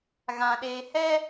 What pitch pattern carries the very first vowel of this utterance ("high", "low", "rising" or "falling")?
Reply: low